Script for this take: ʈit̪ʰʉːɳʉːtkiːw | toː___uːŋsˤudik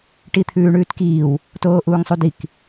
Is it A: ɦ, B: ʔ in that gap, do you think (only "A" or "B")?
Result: B